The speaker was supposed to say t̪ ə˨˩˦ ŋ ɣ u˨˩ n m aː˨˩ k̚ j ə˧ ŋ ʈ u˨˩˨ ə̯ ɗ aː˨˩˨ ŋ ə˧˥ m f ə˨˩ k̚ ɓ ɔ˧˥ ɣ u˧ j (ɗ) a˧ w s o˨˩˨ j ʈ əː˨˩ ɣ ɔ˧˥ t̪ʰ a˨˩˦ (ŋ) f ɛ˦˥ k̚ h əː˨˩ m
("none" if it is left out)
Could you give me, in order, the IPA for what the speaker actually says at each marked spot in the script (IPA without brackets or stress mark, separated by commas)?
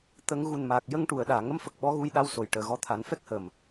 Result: ɗ, n